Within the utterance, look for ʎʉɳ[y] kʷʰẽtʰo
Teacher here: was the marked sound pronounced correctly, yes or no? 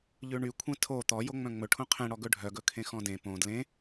yes